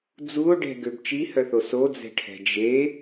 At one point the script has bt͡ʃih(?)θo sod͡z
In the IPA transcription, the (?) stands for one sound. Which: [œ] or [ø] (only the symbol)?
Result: œ